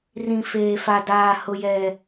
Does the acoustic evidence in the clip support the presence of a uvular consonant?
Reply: no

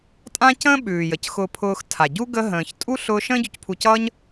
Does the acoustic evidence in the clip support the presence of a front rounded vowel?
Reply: no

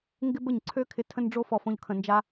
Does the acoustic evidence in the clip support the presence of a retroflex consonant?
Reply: yes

